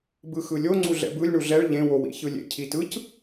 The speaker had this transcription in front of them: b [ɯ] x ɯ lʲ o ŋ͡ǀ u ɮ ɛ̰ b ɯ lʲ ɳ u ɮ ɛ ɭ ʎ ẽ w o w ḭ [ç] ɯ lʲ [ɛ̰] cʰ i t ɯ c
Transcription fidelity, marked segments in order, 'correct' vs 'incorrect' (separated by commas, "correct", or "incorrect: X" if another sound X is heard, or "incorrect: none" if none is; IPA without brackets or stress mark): correct, correct, incorrect: ḛ